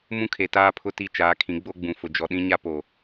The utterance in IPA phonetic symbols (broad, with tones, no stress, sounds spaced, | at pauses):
m ũ˦ kʰ e˨ t aː˦ pʰ ʊ˦ t i˦ t͡ʃ aː˨˦ kʰ ĩ˨˦ ɡ͡b o˦ ɡ͡b ũ˨ f ʊ˨ d͡ʒ ɔ˨ ɗ ĩ˦ ɲ a˦ p o˨